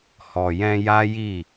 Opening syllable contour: low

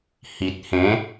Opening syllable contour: low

